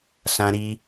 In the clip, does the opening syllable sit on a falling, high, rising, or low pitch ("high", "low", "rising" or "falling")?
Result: high